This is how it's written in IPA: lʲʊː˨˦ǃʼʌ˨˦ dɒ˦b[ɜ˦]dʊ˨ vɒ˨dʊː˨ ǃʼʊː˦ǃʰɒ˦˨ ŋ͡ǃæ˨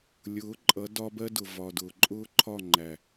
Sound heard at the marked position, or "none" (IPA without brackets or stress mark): ɜ˦